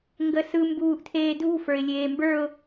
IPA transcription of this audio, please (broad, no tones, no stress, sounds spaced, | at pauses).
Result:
ŋ ɡ ə s ɯ m b uː ʔ tʰ eː dʱ ṳ f ə˞ ɪ̯ lʲ eː m b ə˞ ʊ̯